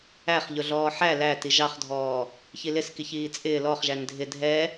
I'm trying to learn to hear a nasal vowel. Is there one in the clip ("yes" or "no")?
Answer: no